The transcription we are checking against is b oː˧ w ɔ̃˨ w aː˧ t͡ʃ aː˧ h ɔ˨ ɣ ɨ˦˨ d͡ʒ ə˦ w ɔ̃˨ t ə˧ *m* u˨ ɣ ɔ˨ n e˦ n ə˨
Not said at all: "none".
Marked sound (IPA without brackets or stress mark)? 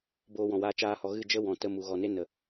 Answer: m